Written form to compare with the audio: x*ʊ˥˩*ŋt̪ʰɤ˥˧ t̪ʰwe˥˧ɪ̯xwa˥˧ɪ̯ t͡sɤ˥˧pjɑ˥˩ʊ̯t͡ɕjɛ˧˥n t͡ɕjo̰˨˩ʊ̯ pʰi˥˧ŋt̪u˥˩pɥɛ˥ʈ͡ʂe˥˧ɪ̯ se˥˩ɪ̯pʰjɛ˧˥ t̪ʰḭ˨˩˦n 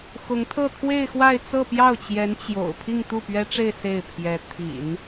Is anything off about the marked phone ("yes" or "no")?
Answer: yes